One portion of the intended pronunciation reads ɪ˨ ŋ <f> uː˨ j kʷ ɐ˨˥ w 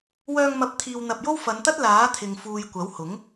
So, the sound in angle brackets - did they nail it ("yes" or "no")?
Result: yes